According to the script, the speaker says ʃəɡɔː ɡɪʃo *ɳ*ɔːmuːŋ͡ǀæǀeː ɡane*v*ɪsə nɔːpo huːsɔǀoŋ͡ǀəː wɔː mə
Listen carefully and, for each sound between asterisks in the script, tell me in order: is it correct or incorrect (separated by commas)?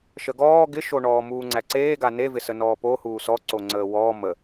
correct, correct